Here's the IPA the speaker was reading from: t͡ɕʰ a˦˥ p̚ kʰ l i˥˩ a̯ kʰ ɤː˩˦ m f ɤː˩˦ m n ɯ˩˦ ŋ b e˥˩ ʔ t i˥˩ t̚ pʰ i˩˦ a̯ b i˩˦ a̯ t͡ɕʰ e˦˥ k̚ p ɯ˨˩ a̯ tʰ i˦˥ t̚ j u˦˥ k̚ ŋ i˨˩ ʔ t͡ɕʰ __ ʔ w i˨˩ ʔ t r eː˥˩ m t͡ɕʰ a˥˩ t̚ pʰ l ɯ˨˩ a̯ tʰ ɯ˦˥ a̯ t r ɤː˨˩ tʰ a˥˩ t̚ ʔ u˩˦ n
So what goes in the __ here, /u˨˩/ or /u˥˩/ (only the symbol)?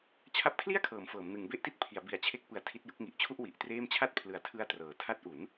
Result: u˥˩